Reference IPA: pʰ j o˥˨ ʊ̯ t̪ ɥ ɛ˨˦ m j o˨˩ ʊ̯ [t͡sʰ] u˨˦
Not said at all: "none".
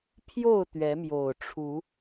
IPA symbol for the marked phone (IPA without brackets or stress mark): ʈ͡ʂʰ